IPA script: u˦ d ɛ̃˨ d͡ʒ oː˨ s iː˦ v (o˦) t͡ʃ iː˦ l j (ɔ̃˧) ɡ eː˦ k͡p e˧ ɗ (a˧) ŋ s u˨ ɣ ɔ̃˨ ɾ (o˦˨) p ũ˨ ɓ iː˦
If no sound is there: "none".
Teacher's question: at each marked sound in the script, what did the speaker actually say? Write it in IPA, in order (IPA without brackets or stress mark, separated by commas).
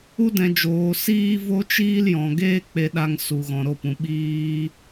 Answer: o˦, ɔ̃˨, a˧, o˧